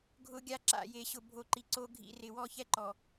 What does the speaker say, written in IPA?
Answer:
ɡʱ ʊ˦ ɡʲ a˦ ǁ a̰˦˨ j e˨ ɕ ʊ˨ bʱ o˨ ǃ i˨ ǀ o˦ ɡʱ ḭ˦˨ r ɪ˨ w ɔ˦ ç ɛ˦ ǃ ɔ˨

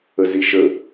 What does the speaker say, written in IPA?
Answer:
ə z i ʃ ə

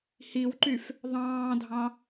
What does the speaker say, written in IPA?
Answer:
h i w ǃ y f | ðˤ ɑ̃ː dʱ ɑ̃

